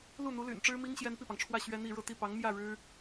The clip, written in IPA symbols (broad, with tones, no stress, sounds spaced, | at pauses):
l u˥˩ n̪ u˧˥ l y̰˨˩ n ʈ͡ʂ ɻ̩˥ m i˥ ŋ ɕ j ɛ˥ n p i˥˩ p ɑ˩ ŋ ʈ͡ʂʰ w ä˥˩ ɕ ɥ ɛ˥ n̪ i˥˧ ɻ ɤ˥˧ t̪ i˥˩ p ɑ˧˥ ŋ m j ä˥˩ ɻ ɻ̩˥